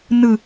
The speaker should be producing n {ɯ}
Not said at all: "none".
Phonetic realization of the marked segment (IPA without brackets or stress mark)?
ɯ